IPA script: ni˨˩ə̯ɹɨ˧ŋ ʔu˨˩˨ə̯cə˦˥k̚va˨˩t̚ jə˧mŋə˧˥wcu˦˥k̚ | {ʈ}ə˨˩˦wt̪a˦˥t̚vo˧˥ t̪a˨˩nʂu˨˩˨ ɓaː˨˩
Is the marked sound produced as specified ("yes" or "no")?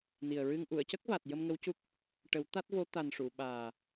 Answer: yes